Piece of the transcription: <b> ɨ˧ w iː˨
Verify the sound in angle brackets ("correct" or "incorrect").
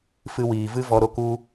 incorrect